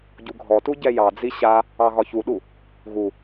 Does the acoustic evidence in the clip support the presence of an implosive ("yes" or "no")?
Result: yes